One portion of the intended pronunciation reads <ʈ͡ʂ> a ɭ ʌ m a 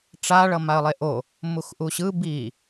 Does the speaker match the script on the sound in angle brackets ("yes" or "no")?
yes